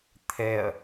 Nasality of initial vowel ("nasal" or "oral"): oral